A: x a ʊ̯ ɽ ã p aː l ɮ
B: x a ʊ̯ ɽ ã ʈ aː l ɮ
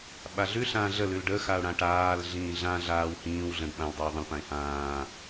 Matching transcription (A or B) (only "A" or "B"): B